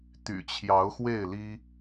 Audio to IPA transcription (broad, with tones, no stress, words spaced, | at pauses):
t̪y̰˨˩t͡ɕʰjɑ˨˦ʊ̯xwe˥˨ɪ̯li˦